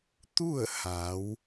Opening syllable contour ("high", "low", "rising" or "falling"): falling